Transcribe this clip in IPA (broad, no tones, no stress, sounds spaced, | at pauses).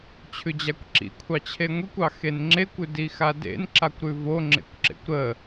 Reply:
t͡ɕʰ ʉ d͡ʑ a kʷ ǁ ḭ kʷʰ ɑ t͡ɕʰ e ŋʷ i kʷ ɑ x e n ŋ͡ǁ e kʷ ʉ d i x a d ḛ n ǁ a kʷ ɾ ʉ v o ŋ͡ǁ ḛ kʷ ǁ ḛ kʷ ɾ ə